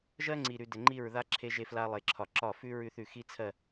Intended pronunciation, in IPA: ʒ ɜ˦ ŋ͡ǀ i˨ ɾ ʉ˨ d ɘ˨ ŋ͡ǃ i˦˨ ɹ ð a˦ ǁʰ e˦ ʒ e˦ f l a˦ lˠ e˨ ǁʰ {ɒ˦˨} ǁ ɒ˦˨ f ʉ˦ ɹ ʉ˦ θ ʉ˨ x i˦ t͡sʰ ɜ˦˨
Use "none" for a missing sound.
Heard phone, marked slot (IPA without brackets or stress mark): ɒ˨